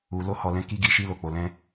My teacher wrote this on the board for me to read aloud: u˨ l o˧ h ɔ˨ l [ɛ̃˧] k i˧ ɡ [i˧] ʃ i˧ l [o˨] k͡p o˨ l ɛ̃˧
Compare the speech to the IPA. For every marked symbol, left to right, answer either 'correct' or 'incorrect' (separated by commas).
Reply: correct, correct, correct